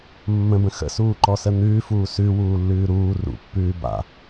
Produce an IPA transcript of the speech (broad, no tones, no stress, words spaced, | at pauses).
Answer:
mːə̃bə̃ xə̰suːǃɔsə n̪ʉːfuː sʉwuːlːʉː ɾuː rṵpːʉː ba̰